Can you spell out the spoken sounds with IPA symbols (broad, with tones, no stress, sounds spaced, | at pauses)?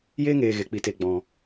j eː˦ ŋ eː˨ ɣ e˨ k͡p i˨ t e˨ ɡ͡b ɔ̃˨